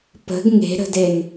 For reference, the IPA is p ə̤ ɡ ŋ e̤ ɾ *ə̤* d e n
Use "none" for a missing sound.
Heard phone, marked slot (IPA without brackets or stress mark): ə̤